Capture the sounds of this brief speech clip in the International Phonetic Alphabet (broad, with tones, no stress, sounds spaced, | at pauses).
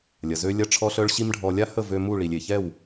lʲ ɐ˨ z ø˧ lʲ ɐ˦ ʈ͡ʂʰ ɔ˦ ɬ œ˦ ɭ ɕ i˦ m ɖʱ ɔ˧ lʲ a˦ h ə˦˨ v ø˧ m u˦˨ ɭ i˨ lʲ e˨ ç ɛ˦˨ w